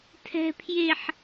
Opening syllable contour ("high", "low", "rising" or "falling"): high